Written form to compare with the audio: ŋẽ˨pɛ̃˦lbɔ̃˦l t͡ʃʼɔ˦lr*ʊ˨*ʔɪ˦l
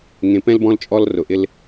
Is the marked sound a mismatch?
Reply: no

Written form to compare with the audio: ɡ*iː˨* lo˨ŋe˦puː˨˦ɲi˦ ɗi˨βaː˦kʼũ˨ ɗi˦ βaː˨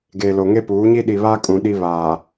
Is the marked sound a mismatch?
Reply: yes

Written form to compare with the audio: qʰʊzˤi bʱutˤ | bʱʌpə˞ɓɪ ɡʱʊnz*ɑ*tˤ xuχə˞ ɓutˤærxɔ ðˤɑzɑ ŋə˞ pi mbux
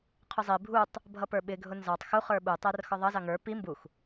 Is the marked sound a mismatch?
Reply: no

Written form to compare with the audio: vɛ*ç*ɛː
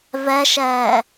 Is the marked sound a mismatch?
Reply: yes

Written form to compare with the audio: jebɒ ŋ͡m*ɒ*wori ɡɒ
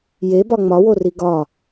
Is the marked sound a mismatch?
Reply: no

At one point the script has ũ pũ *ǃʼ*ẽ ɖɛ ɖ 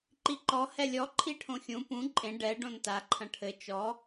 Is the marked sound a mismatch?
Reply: no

